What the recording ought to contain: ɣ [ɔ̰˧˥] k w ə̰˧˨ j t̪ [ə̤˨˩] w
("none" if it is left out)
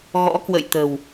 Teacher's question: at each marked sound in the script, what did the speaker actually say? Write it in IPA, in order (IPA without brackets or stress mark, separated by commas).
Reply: ɔ̰˧˥, ə̤˨˩